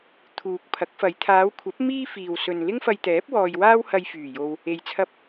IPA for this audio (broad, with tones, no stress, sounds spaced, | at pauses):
t̪ʰ uː˨ k̚ pʰ ɐ˨˥ k̚ f ɐ˨˧ j t̪ʰ aː˨˧ w kʷʰ ɐ˨˥ p̚ m iː˥ f iː˨ w s ɵ˨ n l ɪ˥ ŋ f ɐ˧ j t̪ ɛː˨˥ p̚ w ɔː˧ j w aː˥ w h ɐ˧ j f yː˨˩ j o˨ w | e˧ j t͡sʰ ɐ˥ p̚